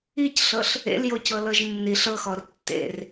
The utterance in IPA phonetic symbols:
i c ɬ ɤ ɬ | ḛ l j o c ɤ l ɤ ʒ nː i ɬ ɤ x ɔ r tː ḛ r

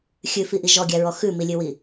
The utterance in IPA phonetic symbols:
xʲ ʉ f i ʔ i ʒ ɔ ɡʲ æ ɹ ɔ x ʉ m i lʲ ʉ w i

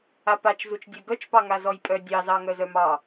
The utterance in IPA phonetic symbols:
a p a t͡ʃ z u t͡ʃ dʲ ɛ ɡ œ t͡ʃ p ɑ ŋ a z ɔ j pʼ œ dʲ ɑ z ɑ ŋ œ z œ m ɑ

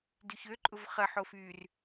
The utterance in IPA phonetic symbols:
d y ç ø ǃʼ ʊ v χ ə ħ o f yː r

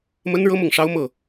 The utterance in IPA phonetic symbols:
m ə˥ n ɻ ɤ˥ m ʊ˥˩ ŋ ʂ ɑ˥ ʊ̯ m ɤ˥˩

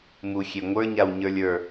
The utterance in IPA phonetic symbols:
m u xʲ e ŋʷ ə˞ ɲ a w ɲ ə˞ lʲ ə˞

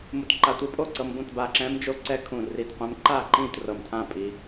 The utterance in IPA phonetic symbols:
m u˧ t ǃ a˧ tʷ ɯ˧˥ pʼ o˥˩ ǀ ɤ˧ m b ũ˥˩ t b a˧˩ ǁ ɛ̃˧˥ m d͡ʒ o˧˥ ǀ ɛ˧˥ kʰ ũ˧˩ r i˧˩ t qʷ ɛ̃˧˥ m ǃ a˥˩ ǃ ĩ˥˩ t r ɤ˧˩ m tʰ ã˥˩ pʼ i˧

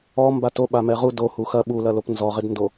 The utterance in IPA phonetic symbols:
ɔ m b a t o ɓ a m ɛ ʁ u d o h u x ɐ ɓ u l ɐ l o p n z ɔ ʁ ɪ d n d o

